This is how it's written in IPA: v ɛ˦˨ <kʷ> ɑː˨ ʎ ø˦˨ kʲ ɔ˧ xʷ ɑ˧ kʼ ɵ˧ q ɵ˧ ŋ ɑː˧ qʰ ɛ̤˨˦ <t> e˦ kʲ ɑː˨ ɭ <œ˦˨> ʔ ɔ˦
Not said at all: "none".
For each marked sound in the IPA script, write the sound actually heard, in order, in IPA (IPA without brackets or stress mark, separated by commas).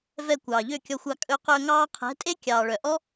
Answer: kʷ, tʼ, œ˨